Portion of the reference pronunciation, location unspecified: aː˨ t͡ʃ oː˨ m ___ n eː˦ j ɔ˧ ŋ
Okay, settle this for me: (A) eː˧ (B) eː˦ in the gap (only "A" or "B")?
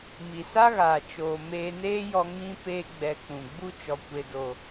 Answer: A